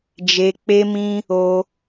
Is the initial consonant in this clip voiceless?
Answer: no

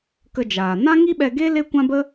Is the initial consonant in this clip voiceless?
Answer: yes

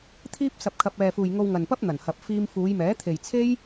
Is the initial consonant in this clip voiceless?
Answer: yes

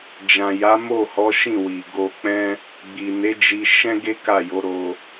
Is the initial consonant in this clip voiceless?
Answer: no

